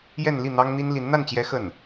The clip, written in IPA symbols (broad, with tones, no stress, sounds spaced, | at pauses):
j ɛ˥˧ n l i˥˩ n̪ ɑ˥ ŋ n̪ i˥ n l i˧˥ n n̪ a˥˩ n t͡ɕ j ɛ˧˥ x ə˥˩ n